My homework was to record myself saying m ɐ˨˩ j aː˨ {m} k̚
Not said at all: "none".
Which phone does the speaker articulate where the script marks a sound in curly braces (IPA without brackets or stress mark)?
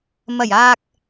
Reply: none